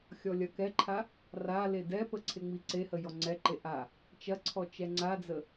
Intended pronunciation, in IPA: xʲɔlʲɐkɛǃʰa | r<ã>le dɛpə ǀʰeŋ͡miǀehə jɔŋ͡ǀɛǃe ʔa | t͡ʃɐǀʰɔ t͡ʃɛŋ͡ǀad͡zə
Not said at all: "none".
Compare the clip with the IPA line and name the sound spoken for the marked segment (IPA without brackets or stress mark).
a